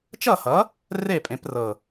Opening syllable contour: falling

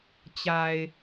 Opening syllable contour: low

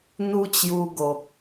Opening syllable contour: high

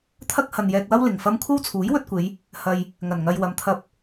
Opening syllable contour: high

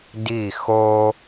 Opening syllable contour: falling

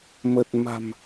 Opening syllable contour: low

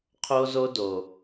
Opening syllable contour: high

